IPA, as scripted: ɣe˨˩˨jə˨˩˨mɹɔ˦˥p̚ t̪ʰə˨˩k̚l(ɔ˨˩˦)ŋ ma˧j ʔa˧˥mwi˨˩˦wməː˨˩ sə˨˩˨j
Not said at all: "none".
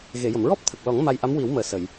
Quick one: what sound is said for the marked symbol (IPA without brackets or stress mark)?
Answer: ɔ˨˩˦